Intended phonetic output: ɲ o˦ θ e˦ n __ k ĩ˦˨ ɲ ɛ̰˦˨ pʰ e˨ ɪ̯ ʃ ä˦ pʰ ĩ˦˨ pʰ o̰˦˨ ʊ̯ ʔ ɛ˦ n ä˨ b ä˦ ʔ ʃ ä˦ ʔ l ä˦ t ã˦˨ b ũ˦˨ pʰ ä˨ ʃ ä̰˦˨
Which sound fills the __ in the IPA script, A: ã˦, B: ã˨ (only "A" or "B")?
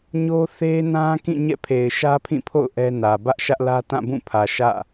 A